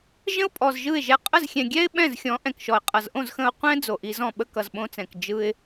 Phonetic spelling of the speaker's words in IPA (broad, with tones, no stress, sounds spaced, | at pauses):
ʒ ə̃˦ ʊ̯ pʼ ɔ˨ z ʒ ɯ˦˨ ɪ̯ ʒ ɛ˧ qʼ ə˦˨ z xʲ ɛ̃˨ ɡʲ ɛ˦ ɪ̯ ɓ ɛ̃˦˨ z xʲ ɔ̃˨˦ ʔ ɛ̃˨ k ʃ ɔ˨ ɪ̯ qʼ ʌ˨ z ʔ õ˦˨ z x ə̃˧ ʊ̯ qʷ ɛ̃˦ d͡z o˨ ʔ i˧ z ɔ̃˦˨ ɓ ə˦ k ʌ˨ z ɓ õ˧ t͡s ɛ̃˨ k d͡ʒ ɯ˧ ɪ̯